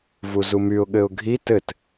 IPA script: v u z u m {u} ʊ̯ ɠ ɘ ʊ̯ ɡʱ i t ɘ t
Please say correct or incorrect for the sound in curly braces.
incorrect